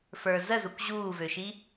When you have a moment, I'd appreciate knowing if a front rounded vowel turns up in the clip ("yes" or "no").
yes